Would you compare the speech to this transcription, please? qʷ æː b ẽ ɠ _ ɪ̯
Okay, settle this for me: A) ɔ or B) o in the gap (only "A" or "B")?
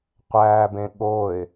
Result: B